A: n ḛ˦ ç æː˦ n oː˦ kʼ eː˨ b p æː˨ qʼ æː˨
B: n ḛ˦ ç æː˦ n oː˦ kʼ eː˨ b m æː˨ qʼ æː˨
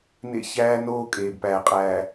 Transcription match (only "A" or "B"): A